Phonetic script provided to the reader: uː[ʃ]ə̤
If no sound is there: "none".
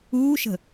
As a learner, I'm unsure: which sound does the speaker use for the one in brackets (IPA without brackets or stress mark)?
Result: ʃ